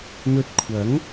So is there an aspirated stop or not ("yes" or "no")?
yes